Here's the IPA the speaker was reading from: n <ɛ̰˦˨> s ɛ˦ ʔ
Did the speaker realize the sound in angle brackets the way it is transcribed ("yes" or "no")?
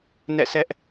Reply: yes